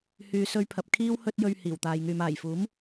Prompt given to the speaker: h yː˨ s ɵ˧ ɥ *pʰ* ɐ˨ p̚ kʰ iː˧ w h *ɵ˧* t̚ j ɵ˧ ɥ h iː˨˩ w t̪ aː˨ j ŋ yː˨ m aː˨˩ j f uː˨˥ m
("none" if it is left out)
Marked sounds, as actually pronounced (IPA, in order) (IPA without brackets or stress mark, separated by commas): pʰ, ɵ˧